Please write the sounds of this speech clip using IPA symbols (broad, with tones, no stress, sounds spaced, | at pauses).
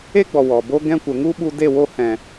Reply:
e˦ ɡ͡b ɔ˨ w ɔ˨ b o˦ ɡ ɛ̃˧ kʷ ə˨ ŋ u˦ ɓ u˧ d e˦˨ w o˧ h ɛ̃˨